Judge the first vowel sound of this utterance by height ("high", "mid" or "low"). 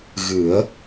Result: high